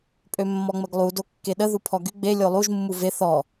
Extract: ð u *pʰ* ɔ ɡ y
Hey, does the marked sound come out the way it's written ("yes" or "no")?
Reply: yes